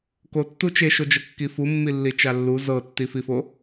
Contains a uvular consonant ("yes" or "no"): no